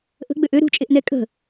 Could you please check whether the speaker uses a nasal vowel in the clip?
no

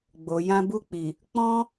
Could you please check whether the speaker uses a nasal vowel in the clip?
yes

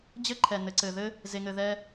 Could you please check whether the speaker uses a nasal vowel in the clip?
no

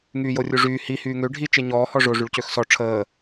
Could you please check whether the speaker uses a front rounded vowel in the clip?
yes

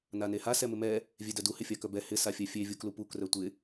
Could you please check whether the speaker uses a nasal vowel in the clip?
no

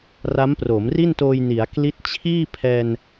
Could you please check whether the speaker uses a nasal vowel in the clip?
no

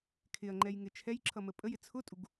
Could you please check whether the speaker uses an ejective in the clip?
yes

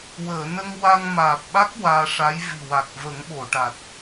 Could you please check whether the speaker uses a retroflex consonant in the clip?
yes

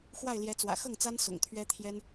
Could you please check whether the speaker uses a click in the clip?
no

